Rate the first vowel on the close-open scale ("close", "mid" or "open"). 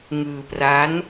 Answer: close